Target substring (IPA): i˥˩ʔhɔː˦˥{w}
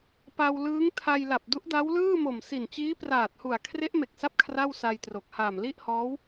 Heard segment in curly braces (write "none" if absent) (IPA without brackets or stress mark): w